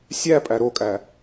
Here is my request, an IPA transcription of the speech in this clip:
sʲ æ pʼ æ ɾ o kʼ æ

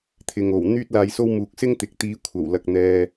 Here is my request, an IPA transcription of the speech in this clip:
t̪ʰ ɪ˨ ŋ o˨˩ w n̪ yː˥ t̚ l aː˧ j s o˥ w m uː˨ k̚ s ɪ˥ ŋ t̪ ɪ˨ k̚ t̪ iː˨˧ kʷʰ ɐ˨˩ w l ɐ˨ k̚ n̪ ɛː˨

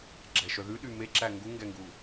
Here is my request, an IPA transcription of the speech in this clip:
ɡ͡ǁ ɛ ʃ œ ð ʉ ɗ y m e ǁ æ ŋ ɡ u ŋ ɡ ɛ ŋ ɡ u

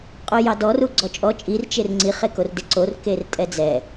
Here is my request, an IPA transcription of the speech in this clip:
qʼ o j ɑ d ɔ r u ɡ͡ǀ ɔ t͡ʃʼ ɔ t͡ʃʼ i r t͡ʃ e r ŋ͡ǀ i χ e k o r d e ǀ o r k e r tʼ ɛ d͡z ɛ

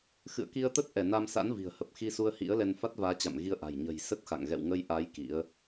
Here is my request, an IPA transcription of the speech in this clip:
x ɨ̰˧˨ ə̯ k i˧ ə̯ t̪ ə˦˥ t̚ ʔ ɛ˧˩ n a˧ m s a̰˧˥ n v i̤˨˩ ə̯ h ə˨˩ p̚ x i˧ s u˧ ə̯ h ḭ˧˥ ə̯ l ɛ˧ n f a˦˥ t̚ v aː˨˦ t͡ɕ a̰˧˨ m ɣ i˧ ə̯ ʔ a̤˨˩ j ɲ ə̤˨˩ j s ə˦˥ t̚ x a̰˧˨ ŋ ɣ ɛ̰˧˨ w ŋ ə˧ j ʔ a˨˦ j k ḭ˧˥ ə̯

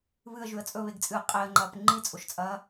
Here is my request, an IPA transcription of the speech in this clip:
β ɨ ə̯ ʒ ʉ ə̯ t͡sʼ ɵ β e ɡ t͡sʼ ɨː qʼ e ə̯ ŋ͡ǃ ɐː p ŋ͡ǃ i t͡sʼ o ʃ t͡sʼ ɐː

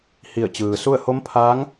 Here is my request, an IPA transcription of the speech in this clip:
h i˧˩ ə̯ t͡ɕ ɯː˩ s u˥˨ ə̯ h o˧˥ m pʰ aː˧˥ ŋ

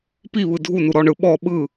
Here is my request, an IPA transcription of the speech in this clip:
p i β ɯ dʱ u n u ɾ ɔ ɳ ɯ ɓ ɔ ɓ ɯ

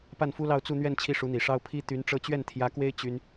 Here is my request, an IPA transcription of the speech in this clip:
p a˥˩ n f u˥ l ɑ˥˧ ʊ̯ t͡s u˥˧ n̪ ɥ ɛ˥˧ n t͡ɕʰ i˥˩ ʂ u˧˥ n̪ i˨˩ ʂ ɑ˥ ʊ̯ pʰ i˥ t̪ y˧˥ n ʈ͡ʂ ɤ˥˧ t͡ɕ ɥ ɛ˥˩ n t̪ʰ j ä˧˥ k w e˥ ɪ̯ t͡ɕ y˥ n

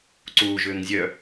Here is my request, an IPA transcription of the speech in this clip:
ǀ u ʒ ʏː ŋ zʲ œ

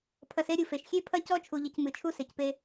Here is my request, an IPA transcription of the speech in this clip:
pʰ ɐ˨ s e˦ ɾʲ u˨ f e˨ ʃ xʲ e˦ pʰ ɐ˦ c ɔ˦ t͡ʃʰ u˨ ʎ ɨ˨ c m ɨ˨ t͡ʃʰ u˦ s e˨ c p e˦

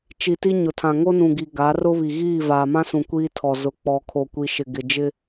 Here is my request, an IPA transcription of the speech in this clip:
t͡ʃ i˨ t i˦ ɲ ʊ˨ tʰ ã˨ ŋ o˦ n ũ˨ ɡ i˨ ɡ a˨˦ r ʊ˦ β i˨ ɣ iː˦˨ v aː˨ m ã˦ s ũ˨ kʷ iː˦ tʰ ɔ˨ z ʊ˨ k͡p ɔ˨ kʰ o˨ kʷ i˨ ʃ ɪ˨ ɡ ɪ˨ d͡ʒ ɪ˦

